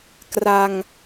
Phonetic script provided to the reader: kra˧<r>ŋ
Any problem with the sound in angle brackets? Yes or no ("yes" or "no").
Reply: yes